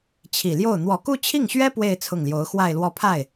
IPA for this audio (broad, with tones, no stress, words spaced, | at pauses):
t͡ɕʰi˨˩ljo˥˩ʊ̯ n̪wɔ˨˩ku˥˧t͡ɕʰi˥˩ŋɕɥɛ˥ pwe˥˧ɪ̯ t͡sʰʊ˥˩ŋljo˧˥ʊ̯ xwa˥˧ɪ̯lwɔ˥˧ pʰa˥˩ɪ̯